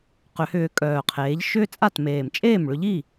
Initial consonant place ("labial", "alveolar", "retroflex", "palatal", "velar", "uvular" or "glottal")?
uvular